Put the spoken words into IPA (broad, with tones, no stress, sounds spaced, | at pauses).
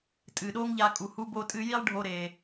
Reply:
tʼ ɨ˨ ɗ o˦ ŋ ʎ a˧ kʼ u˨ h u˧ b o˧ tʼ ɨ˧ j i˦ lˠ ɖʱ o˧ ɾ e˨